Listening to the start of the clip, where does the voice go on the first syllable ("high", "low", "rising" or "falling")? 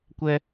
high